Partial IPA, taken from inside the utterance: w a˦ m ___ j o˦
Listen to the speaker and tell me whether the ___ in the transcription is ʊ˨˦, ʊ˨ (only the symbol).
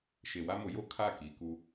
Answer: ʊ˨˦